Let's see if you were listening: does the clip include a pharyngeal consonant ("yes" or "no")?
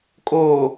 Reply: no